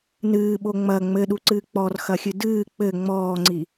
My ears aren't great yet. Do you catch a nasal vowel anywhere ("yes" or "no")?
no